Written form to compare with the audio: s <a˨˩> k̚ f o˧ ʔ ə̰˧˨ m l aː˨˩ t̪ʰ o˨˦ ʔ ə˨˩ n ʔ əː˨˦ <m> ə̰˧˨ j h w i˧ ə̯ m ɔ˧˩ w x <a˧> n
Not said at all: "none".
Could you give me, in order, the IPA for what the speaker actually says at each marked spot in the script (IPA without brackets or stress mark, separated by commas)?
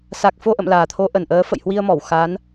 a˨˩, f, a˨˦